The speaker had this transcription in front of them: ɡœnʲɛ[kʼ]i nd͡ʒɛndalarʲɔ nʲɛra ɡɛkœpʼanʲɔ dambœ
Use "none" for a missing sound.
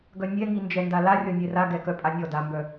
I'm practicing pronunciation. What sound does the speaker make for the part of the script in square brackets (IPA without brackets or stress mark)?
ŋ